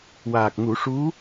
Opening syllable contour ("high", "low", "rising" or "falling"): low